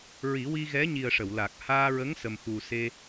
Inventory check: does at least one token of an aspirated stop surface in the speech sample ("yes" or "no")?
no